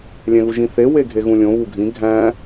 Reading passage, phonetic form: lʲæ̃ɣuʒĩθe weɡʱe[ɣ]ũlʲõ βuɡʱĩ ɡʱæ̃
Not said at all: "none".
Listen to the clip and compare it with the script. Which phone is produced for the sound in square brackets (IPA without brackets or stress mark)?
ɣ